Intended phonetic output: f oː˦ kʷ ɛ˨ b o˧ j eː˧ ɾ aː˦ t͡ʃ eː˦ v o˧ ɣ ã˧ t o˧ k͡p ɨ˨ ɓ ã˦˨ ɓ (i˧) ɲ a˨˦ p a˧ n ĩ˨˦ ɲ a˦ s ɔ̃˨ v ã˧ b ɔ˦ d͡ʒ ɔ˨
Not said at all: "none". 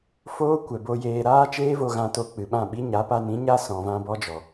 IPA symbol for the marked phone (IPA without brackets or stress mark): i˦